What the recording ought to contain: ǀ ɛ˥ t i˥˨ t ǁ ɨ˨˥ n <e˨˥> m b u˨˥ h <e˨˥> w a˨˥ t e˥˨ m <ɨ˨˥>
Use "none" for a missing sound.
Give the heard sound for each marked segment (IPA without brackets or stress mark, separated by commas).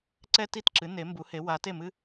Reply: e˨˥, e˨˥, ɨ˥